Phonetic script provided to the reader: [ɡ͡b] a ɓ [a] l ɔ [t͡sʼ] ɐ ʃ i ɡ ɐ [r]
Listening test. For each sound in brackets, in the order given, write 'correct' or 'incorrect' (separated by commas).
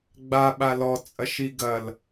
correct, correct, correct, incorrect